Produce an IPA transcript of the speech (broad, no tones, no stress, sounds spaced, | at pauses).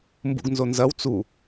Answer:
m b ṵ ɡ n z o n z ɐ w t͡s u